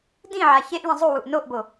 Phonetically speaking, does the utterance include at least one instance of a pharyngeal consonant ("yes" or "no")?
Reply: yes